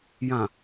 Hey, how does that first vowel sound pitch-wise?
low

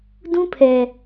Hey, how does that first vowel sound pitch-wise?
high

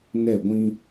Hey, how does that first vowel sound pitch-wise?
falling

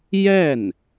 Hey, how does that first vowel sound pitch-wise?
falling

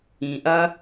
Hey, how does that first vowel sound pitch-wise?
low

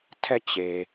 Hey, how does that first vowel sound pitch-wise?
falling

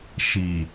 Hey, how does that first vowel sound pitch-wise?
low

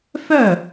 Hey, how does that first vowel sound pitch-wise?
falling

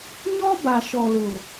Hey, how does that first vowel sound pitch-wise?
high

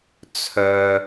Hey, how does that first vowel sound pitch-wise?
low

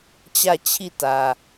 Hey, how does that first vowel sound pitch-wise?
falling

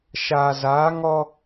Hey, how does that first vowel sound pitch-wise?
low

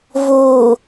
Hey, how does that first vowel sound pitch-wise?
low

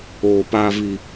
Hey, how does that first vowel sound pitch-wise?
low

